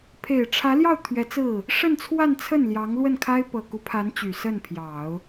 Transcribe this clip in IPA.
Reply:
pʰ e˨˩ ɪ̯ ʈ͡ʂʰ ä˧˥ l j ɑ˥˩ ʊ̯ t̪ʰ ɥ ɛ˧˥ t͡s ɹ̩˥˩ | ʂ ə˥˧ n t͡sʰ w a˥˧ n t͡sʰ ə˥˩ n l j ɑ˧˥ ŋ l w ə˥˩ n kʰ a˥ ɪ̯ p ɤ˨˩ k u˧˥ pʰ a˧˥ n t͡ɕ y˨˩ s ə˥˩ n pʰ j ɑ˨˩˦ ʊ̯

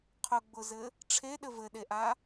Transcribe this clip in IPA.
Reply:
qʰ ʊ ɡ͡b ʊ z ɘ | ʈ͡ʂʰ e ɗ ɘ v ɘ ɗ e ʔ a

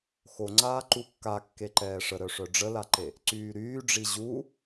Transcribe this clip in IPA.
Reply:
x o ŋ͡ǀ aː ǃ u kː a kː e ǃ ɛː ʂ ə ɾ œ ʂ œ ɖ͡ʐ ə l a ǃ e | ǀ yː ɾ yː ɖ͡ʐ i ʑ u

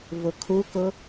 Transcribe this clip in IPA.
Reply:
v ʊ kʰ u k ʊ

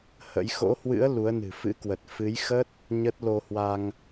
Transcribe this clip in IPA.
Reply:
h ə̰˧˥ j x o̰˧˥ h w ɨ̰˧˥ ə̯ l u˨˦ ə̯ n ɨ̤˨˩ f ɨ̰˧˥ k w ə˨˩ t̚ f ɨ˨˦ j x ə˦˥ t̚ | ɲ ə˦˥ t̚ l o˧ h w a˧ ŋ

